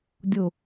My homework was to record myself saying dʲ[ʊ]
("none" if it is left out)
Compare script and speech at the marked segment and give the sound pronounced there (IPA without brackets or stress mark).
ʊ